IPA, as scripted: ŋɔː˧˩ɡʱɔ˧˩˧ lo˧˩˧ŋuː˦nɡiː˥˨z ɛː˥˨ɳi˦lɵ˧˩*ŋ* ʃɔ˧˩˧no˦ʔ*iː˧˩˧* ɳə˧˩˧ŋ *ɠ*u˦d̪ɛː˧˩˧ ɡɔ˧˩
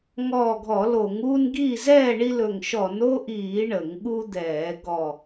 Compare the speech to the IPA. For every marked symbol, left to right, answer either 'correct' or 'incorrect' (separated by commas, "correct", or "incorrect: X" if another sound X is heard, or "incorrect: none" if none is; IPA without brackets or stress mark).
correct, correct, correct